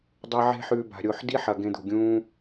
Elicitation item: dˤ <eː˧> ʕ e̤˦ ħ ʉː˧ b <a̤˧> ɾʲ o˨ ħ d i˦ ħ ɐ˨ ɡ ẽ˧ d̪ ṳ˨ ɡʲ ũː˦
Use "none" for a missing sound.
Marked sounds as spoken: e˧, a̤˨

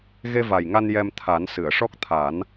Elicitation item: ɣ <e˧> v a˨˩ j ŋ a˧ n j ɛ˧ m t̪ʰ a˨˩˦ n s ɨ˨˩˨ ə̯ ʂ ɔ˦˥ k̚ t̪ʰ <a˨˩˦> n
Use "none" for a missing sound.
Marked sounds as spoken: e˧, a˨˩˦

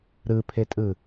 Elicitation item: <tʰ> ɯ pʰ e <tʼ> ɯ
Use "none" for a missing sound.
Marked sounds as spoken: ɾ, tʼ

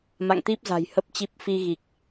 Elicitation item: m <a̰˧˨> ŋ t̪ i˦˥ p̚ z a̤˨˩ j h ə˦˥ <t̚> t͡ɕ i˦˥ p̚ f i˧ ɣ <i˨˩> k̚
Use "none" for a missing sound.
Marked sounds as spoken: a̰˧˨, p̚, i˨˩

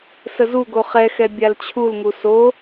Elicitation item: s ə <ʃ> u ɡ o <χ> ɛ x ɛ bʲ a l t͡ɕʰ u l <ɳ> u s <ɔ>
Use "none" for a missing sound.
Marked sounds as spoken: z, χ, ŋ, o

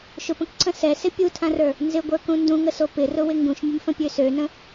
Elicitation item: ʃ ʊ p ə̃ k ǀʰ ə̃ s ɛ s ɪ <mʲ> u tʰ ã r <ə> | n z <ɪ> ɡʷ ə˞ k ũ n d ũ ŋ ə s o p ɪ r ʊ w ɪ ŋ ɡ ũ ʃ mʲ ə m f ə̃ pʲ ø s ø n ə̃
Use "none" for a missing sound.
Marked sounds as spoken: pʲ, ə˞, ɪ

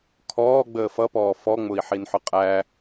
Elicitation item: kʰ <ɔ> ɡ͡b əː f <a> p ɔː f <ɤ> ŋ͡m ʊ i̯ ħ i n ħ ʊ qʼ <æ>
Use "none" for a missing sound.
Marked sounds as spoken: ɔː, ʌ, ɔ, æ

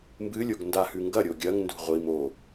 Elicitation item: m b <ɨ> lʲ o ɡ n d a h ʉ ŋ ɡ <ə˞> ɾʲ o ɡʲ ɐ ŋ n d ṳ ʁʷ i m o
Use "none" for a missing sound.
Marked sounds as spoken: ɨ, ɐ

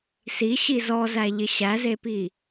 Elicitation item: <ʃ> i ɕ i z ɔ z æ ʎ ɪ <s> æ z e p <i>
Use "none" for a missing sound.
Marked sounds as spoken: s, ɕ, i

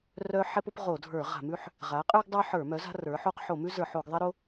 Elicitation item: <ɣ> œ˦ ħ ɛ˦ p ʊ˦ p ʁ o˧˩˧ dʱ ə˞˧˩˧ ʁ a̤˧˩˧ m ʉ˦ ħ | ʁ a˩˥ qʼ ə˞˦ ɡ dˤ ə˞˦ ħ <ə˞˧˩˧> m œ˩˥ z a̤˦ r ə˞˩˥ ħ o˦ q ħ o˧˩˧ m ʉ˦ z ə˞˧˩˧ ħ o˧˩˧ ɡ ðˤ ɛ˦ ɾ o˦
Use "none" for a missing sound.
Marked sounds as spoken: r, ə˞˧˩˧

